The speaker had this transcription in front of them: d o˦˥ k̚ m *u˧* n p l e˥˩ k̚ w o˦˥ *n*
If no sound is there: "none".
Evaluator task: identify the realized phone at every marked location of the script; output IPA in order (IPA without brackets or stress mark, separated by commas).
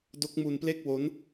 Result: u˧, n